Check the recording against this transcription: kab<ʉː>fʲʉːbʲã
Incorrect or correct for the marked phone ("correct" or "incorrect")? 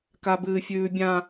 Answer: incorrect